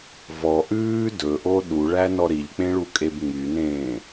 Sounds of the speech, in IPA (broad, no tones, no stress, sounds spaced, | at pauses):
v ɔ ʔ ʉː d ɵ ʔ o ɗ u ɭ æ n ɔ ɾ i ʎ k͡p ẽ ɭ u kʼ e b ŋ͡m y n ẽː